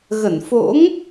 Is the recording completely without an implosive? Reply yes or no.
yes